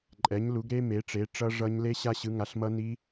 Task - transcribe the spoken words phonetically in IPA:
ǃʼ ɛ˩˥ ɲ l u˩˥ ɡ ɾ e˦˥ m e˩˥ ʈ͡ʂ e˩˥ ʈ͡ʂ ʌ˦˥ ʐ ʌ˦˥ ɲ l e˦˥ ɕ a˦˥ ɕ ɯ˩˥ ŋ a˩˥ ɬ m ʌ˦˥ n i˦˥

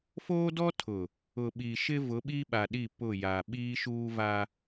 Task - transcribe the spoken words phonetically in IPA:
f oː˦ d ɔ˦ tʰ ʊ˨ | ʊ˨ ɓ i˨ ʃ ɪ˦ v ʊ˨˦ ɓ i˦ ɓ a˨ ɗ i˦˨ p ʊ˦˨ j a˨ ɓ iː˦ ʃ uː˦ v a˦

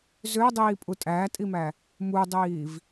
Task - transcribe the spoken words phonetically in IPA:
z ø dˤ iː pʼ u tʼ æː tʼ i m æ | m u dˤ iː v

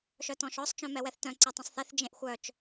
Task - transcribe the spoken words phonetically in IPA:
ʃ œ t ɔ̃ ʃ ɔ sˤ t͡ʃ œ̃ m ɛ w ɛ θ t œ̃ ǀ ɛ tˤ ɛ̃ sˤ θ e θ d͡ʒ ẽ ʔ xʷ œ t͡ʃ

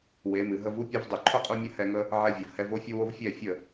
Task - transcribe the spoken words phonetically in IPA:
w e˨˦ m ɨ˨ ɦ ə˧ v u˦ pʲ o˧ v dˤ ɨ˨ ǃʰ ʊ˦ qʼ u˧ mʲ ə˦ h ɛ˧ ŋ ə˦ | ʕ ɛ˧ vʲ ʊ˨ v h ɛ˧ v o˧ fʲ ʊ˧ w o˧ v fʲ ɛ˦˨ fʲ ə˦˨

